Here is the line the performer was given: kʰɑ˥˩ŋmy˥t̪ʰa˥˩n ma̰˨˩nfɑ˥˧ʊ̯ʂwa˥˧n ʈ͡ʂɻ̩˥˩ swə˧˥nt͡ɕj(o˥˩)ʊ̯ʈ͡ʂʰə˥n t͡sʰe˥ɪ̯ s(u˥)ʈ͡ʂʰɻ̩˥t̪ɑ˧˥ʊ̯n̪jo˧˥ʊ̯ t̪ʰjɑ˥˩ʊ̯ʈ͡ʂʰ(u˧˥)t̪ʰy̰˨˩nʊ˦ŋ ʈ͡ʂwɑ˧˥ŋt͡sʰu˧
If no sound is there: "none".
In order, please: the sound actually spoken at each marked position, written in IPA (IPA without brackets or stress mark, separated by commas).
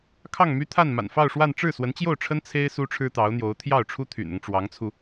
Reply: o˥˩, u˥, u˥